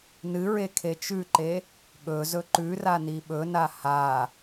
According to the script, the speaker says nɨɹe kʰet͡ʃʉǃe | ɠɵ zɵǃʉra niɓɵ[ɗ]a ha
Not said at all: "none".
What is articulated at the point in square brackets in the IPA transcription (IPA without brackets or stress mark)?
n